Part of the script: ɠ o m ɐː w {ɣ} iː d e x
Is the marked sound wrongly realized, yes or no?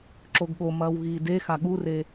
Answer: no